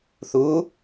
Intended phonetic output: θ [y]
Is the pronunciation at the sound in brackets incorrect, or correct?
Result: incorrect